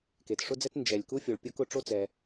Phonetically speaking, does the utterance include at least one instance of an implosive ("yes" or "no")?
no